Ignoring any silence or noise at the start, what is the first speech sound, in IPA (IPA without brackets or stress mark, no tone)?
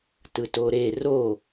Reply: t